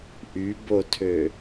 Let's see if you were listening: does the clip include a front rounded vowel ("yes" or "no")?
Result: yes